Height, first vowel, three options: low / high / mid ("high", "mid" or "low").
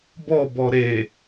mid